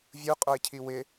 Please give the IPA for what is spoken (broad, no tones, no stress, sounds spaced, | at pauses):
vʲ u qʼ o ɪ̯ cʰ i w ɪ